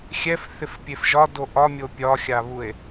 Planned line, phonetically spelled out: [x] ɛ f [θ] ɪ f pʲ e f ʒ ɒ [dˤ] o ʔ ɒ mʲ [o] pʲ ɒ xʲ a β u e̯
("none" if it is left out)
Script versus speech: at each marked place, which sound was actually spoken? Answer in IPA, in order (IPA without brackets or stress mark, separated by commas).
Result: xʲ, θ, d, o